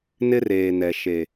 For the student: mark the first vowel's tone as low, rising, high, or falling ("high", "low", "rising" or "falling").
high